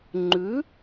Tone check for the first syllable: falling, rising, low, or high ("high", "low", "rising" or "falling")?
rising